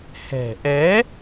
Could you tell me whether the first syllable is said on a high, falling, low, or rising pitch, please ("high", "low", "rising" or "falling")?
low